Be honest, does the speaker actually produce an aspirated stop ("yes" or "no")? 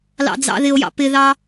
no